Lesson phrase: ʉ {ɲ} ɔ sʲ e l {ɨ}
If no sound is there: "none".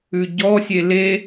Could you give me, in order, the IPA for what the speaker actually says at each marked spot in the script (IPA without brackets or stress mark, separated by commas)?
ɟ, e